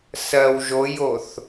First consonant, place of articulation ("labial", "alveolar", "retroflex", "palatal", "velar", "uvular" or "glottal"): alveolar